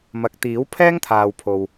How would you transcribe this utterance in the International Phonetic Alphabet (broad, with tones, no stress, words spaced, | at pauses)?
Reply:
mɐ˨˥k̚t̪iː˨˥w pʰɛː˥ŋt̪ʰaː˨wpʰo˨w